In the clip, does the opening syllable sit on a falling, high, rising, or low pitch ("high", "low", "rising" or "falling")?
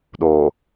low